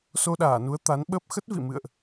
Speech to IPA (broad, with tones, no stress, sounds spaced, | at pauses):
s o˧ ɗ aː˧˩ n u˨˦ ə̯ t̪ a˨˦ n ɓ ə˦˥ p̚ x ə˦˥ t̚ v ḭ˧˨ m ɨ̰˧˨ ə̯ ʔ